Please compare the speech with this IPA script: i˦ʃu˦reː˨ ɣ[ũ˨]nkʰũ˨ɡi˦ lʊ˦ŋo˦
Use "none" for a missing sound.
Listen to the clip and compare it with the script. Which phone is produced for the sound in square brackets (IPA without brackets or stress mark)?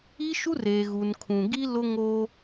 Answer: u˨